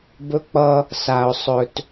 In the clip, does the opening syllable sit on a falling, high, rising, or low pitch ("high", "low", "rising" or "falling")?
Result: high